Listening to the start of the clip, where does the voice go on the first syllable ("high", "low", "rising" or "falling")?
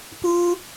high